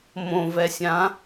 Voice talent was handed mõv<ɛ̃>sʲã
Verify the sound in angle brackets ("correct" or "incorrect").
incorrect